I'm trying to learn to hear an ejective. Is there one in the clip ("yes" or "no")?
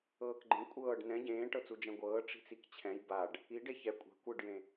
yes